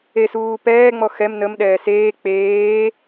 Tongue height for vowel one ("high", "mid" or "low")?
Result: mid